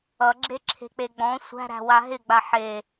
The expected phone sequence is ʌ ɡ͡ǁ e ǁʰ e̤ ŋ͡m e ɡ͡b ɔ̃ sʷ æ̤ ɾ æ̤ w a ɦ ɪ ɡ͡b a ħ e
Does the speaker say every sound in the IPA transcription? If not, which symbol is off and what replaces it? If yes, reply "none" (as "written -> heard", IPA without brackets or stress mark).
ŋ͡m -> k͡p